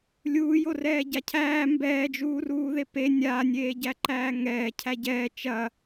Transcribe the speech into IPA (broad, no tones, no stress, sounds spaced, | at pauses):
lʲ uː j o r ɛː ɟ a cʰ æː m b ɛː d͡ʒ uː r uː ð e p e nʲ a nʲ eː ɟ æ ǃ æː ŋ ɛː cʰ æ ɟ ɛ t͡ʃ ɐ